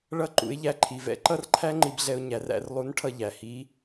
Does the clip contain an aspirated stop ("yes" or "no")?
yes